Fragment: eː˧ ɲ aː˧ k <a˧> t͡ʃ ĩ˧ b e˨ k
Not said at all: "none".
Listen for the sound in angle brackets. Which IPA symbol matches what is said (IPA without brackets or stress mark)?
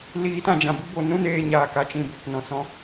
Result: a˧